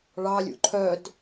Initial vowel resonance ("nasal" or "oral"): oral